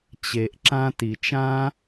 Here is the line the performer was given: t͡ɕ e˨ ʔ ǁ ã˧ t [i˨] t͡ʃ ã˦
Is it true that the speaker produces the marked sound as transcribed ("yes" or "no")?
yes